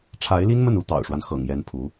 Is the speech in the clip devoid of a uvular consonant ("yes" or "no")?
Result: yes